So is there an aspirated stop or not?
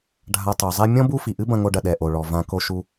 no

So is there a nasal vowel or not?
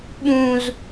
yes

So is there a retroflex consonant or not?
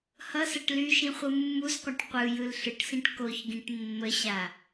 yes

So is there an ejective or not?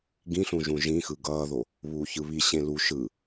no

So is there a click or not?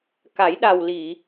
no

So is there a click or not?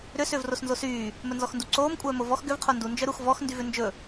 yes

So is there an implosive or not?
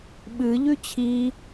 yes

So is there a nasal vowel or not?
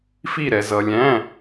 yes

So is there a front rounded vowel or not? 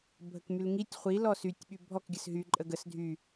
yes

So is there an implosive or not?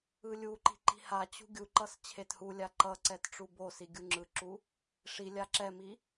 no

